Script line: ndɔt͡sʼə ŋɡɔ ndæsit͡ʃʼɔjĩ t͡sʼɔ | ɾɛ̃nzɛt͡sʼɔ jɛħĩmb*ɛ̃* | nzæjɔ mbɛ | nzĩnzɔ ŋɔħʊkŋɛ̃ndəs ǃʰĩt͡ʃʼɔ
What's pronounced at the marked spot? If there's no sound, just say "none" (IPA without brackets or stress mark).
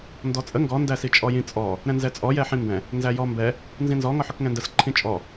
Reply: ɛ̃